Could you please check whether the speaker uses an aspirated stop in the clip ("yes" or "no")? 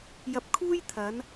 yes